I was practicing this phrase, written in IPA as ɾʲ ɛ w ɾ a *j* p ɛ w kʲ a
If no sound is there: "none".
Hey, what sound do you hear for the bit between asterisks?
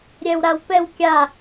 w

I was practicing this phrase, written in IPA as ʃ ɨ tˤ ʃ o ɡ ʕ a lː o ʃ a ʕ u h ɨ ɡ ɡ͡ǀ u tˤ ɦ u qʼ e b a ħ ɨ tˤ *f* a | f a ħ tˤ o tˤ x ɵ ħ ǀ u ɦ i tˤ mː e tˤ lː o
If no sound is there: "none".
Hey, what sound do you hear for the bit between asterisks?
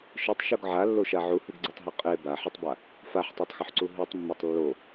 b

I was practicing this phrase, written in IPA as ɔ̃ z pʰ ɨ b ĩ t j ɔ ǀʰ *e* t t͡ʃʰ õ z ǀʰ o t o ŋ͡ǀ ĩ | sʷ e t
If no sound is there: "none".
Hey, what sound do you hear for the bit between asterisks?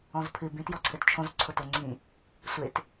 ɘ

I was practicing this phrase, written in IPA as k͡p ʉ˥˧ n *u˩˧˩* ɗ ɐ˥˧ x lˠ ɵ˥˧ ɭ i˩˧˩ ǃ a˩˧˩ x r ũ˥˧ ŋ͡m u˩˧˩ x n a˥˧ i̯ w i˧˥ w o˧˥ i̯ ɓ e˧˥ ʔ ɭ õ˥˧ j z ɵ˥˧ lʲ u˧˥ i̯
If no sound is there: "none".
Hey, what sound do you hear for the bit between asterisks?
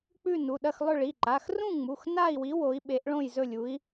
u˩˧˩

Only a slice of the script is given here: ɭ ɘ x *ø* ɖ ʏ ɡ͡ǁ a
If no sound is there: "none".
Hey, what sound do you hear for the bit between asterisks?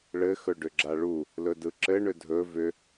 ɵ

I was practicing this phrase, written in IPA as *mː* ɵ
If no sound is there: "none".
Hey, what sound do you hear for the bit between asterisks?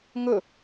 ŋ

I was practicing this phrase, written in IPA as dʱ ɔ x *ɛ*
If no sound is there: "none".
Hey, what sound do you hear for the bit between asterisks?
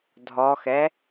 ɛ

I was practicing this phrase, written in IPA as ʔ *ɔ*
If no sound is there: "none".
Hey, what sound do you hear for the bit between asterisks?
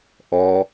ɔ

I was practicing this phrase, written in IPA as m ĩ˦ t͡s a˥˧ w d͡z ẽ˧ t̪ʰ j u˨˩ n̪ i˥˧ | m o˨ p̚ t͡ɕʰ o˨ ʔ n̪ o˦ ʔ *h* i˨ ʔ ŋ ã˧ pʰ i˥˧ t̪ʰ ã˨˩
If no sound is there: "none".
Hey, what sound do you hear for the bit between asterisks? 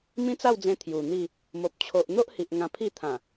h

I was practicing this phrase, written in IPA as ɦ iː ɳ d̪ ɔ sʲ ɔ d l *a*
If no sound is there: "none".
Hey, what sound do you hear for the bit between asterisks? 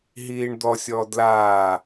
aː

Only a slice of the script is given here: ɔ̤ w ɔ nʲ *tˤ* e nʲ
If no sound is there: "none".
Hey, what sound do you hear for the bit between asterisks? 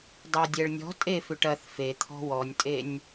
tʼ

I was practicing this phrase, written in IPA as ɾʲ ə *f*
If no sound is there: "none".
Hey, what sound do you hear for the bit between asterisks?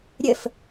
f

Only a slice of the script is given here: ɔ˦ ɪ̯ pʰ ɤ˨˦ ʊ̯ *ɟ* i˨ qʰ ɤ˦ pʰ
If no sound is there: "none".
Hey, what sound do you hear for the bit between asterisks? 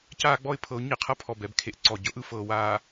ɲ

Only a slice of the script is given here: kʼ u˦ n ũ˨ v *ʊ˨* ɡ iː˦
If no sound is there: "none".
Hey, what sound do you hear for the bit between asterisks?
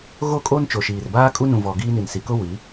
ɔ˨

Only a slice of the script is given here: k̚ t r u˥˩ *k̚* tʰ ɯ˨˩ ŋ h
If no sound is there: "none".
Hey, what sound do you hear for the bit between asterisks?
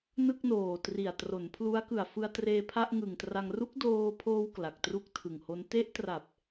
k̚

